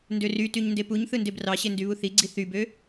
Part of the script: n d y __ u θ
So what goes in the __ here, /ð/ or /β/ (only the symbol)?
β